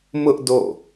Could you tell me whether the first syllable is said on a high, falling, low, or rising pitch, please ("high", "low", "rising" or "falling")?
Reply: high